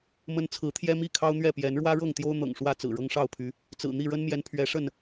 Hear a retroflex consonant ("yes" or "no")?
yes